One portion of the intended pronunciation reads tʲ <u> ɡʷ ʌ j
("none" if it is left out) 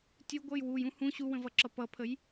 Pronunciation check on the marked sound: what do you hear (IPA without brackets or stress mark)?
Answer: u